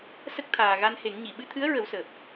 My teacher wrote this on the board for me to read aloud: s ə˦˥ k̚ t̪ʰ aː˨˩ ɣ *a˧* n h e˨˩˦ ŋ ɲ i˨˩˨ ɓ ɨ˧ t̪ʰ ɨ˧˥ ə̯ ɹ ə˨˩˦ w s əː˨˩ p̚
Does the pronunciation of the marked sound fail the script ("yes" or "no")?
no